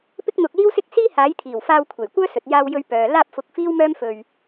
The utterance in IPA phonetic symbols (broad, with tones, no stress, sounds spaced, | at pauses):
p ɪ˥ k̚ n̪ ʊ˧ k̚ l iː˥ w s ɪ˥ k̚ s iː˥ h aː˨˥ j t̪ʰ iː˨˩ w f aː˧ w kʷʰ e˨˩ j kʷ œː˥ s ɵ˨ t̚ j aː˧ w j ɵ˧ ɥ p œː˨ l aː˧ p̚ f ʊ˨˥ k̚ f iː˥ w m œː˥ m f ɵ˧ ɥ